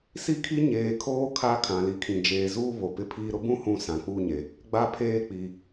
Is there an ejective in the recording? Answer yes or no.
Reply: no